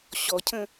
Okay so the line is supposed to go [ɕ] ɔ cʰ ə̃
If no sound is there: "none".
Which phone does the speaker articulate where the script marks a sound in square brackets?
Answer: ɕ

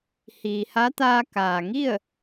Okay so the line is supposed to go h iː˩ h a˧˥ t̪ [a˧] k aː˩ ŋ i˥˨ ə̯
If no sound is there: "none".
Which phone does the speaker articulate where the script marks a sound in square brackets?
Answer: aː˧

